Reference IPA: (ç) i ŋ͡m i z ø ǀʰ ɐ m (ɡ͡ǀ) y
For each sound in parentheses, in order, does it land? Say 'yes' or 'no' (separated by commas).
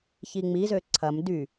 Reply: yes, no